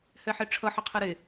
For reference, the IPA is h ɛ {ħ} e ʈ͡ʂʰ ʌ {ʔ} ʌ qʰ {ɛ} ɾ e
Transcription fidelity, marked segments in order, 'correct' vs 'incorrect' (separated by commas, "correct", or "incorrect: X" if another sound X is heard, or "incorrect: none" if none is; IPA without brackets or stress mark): correct, incorrect: ħ, incorrect: e